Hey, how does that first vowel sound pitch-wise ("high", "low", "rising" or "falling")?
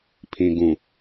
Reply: low